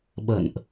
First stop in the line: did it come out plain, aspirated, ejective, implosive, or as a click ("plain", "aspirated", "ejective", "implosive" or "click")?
implosive